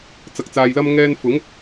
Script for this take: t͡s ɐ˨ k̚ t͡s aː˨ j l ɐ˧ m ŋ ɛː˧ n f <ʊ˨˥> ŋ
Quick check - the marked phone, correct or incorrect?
correct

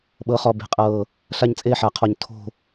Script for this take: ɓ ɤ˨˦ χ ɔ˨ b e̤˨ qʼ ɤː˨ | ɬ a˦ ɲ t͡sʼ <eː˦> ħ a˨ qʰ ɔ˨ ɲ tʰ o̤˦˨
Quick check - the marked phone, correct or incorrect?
correct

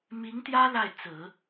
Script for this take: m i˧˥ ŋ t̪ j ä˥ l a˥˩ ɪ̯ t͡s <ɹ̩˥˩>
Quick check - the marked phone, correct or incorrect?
incorrect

